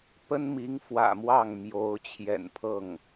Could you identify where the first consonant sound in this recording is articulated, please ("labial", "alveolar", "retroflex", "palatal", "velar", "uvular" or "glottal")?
labial